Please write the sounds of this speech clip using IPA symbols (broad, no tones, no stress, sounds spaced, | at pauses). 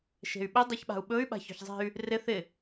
ʃ e̤ y̯ ɓ ɪ dˤ i ç ɓ a̤ u̯ ɓ ɵ y̯ ɓ a̤ ç ɔ̤ ç zˤ e̤ y̯ | r ɪ θ ɪ